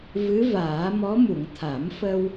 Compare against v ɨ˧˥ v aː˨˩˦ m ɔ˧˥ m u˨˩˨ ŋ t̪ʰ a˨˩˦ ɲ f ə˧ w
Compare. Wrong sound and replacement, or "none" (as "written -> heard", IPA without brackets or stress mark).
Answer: ɲ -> m